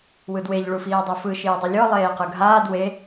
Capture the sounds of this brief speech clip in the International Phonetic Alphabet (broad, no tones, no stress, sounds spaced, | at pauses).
w ɯ d w e ʎ ɭ u f iː dˤ u f ɯ ʃ iː dˤ u lʲ ɔ lˠ eː q ɯ ɡʱ aː d w e